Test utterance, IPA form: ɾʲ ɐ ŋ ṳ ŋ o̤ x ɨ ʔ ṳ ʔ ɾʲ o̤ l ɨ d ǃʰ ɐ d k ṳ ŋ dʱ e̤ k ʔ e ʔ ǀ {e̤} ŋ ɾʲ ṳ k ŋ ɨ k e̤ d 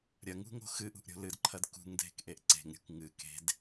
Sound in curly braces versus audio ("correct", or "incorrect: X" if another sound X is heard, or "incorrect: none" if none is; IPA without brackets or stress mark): correct